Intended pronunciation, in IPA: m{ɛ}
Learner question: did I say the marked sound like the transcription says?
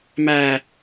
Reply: no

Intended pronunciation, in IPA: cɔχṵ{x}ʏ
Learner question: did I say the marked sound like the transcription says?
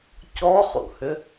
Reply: no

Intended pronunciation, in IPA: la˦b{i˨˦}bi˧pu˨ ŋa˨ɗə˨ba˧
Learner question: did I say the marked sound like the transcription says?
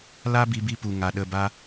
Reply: no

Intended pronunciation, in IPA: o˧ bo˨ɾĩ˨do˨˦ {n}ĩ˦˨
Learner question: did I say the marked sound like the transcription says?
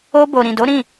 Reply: no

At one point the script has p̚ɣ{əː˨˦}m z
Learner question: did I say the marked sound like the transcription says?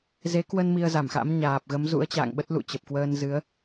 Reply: no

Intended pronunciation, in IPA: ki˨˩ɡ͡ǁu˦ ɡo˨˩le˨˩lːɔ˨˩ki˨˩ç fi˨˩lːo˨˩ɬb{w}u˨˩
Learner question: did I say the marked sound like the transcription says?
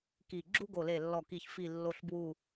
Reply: yes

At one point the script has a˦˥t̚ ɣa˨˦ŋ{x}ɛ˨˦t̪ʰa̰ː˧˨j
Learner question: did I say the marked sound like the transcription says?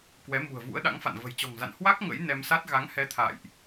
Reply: no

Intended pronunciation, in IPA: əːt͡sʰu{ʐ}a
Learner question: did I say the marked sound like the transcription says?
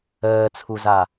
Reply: no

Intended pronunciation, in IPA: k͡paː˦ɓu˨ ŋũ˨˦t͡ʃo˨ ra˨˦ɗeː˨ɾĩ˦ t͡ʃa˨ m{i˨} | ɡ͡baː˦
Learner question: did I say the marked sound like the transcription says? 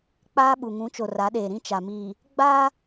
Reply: no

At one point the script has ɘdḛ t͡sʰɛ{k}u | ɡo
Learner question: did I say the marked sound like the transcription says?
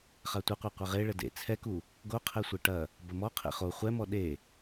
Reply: yes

